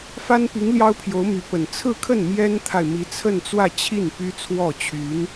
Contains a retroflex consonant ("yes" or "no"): no